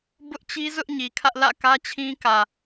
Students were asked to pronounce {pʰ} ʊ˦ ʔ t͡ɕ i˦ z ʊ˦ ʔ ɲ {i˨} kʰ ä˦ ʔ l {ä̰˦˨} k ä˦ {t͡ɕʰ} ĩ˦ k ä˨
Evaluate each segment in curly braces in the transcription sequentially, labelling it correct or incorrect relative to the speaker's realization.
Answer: incorrect, correct, correct, correct

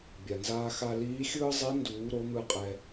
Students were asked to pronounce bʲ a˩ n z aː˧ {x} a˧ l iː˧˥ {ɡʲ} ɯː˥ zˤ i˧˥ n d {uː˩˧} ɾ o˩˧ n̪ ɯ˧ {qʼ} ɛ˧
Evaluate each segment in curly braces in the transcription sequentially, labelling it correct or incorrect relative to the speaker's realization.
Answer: correct, incorrect, correct, correct

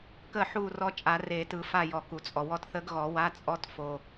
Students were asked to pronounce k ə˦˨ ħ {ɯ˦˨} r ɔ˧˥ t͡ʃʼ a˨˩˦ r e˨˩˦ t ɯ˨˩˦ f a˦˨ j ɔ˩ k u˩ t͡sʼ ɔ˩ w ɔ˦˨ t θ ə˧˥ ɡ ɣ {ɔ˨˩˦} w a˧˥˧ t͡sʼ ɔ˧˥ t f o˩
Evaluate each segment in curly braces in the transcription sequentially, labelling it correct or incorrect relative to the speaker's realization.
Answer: incorrect, correct

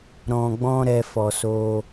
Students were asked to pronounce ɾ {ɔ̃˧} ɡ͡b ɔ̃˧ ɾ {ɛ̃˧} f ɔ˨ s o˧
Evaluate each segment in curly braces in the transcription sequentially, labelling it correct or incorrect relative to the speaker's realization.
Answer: incorrect, incorrect

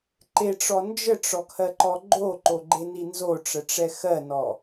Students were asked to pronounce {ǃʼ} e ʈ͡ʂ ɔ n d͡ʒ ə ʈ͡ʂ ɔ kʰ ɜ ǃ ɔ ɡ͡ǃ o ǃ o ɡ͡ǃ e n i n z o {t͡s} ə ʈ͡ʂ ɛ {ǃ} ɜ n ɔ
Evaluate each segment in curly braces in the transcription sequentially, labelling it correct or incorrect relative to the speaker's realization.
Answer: incorrect, incorrect, incorrect

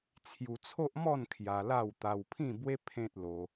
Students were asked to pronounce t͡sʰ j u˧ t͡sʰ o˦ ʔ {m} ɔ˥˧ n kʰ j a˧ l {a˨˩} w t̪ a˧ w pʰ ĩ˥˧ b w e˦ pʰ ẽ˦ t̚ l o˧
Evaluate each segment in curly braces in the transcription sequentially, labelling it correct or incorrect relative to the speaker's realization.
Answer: correct, incorrect

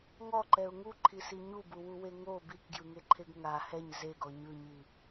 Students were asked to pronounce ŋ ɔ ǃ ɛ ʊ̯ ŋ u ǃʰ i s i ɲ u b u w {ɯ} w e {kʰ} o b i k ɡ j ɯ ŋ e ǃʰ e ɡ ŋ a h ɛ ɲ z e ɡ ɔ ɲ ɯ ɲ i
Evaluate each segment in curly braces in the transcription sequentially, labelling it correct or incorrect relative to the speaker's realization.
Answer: incorrect, incorrect

